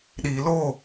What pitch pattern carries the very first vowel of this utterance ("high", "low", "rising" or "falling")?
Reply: low